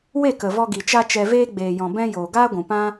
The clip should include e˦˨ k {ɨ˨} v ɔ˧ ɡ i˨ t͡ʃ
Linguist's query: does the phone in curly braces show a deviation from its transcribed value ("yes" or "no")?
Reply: yes